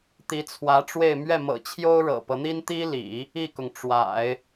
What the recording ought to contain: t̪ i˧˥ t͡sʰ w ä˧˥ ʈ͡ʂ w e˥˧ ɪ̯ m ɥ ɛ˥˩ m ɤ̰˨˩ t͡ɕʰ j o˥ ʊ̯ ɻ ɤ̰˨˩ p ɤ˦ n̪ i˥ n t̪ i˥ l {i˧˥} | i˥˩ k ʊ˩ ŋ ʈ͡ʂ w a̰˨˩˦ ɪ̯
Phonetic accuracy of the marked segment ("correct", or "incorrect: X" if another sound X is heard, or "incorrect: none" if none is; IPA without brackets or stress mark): incorrect: ḭ˨˩˦